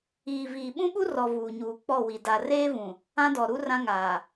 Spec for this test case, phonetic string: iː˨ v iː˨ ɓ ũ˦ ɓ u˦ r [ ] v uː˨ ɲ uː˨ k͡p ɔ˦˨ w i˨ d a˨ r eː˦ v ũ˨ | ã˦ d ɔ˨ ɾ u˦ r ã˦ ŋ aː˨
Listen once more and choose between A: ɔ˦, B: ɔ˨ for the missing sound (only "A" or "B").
B